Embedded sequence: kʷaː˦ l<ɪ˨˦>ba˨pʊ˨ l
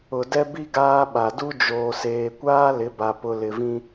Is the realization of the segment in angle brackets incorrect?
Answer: no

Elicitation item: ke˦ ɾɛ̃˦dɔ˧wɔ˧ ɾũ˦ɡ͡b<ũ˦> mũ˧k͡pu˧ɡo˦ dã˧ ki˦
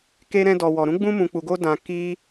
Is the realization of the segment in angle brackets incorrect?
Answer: no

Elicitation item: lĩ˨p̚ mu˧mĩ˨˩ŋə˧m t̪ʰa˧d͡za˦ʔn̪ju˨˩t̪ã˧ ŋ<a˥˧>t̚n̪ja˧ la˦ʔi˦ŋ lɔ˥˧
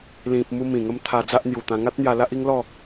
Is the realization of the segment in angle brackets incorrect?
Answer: yes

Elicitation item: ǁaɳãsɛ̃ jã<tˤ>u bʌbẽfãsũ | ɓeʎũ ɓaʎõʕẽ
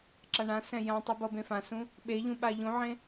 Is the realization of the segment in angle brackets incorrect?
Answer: no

